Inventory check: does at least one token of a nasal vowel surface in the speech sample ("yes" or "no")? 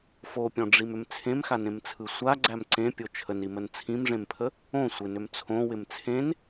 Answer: yes